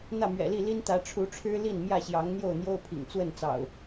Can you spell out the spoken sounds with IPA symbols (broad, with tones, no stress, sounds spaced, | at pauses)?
n̪ ä˥˨ m ɥ ɛ̰˨˩ l i˥˨ l i˦ n t̪ ä˨˦ ʈ͡ʂʰ u˨˦ ʈ͡ʂʰ ɻ̩˦ l i˥˨ n m j ä˥˨ ɕ j ɑ˨˦ ŋ n̪ j o˥˨ ʊ̯ n̪ j o˦ ʊ̯ pʰ ḭ˨˩ ŋ t͡s w ə˥˨ n t͡s ɑ̰˨˩ ʊ̯